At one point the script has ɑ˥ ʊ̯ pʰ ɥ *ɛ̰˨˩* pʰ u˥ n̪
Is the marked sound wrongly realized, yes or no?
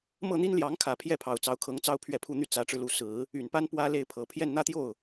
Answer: yes